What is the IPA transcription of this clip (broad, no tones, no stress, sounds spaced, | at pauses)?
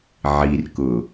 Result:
ʕ i r k ʊ